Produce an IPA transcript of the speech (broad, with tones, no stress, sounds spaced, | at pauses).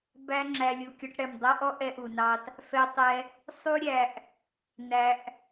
b æ˧ ŋ͡ǁ æ˧ lʲ u˨ kʲ ɔ˧ ʈ ɽ ɛ˨ m dˤ ʌ˦ ʔ ɔ˦ ʔ ɛ˧ ʔ u˨ n ɑ˧ t | f ɛ˧ tˤ ɛ˧ | sˤ u˦ ɾʲ æ˧ ʔ | n æ˧ ʔ